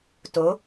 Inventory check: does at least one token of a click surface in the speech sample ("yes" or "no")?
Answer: no